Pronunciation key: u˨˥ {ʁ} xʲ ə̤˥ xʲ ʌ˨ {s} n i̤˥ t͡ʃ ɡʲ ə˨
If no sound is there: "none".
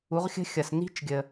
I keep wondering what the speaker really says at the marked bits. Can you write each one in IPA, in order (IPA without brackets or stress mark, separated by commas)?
ʁ, s